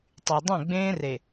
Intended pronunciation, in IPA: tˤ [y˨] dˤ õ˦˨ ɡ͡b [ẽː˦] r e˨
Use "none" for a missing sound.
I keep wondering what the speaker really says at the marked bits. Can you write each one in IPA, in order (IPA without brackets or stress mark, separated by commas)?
y˨, ẽː˦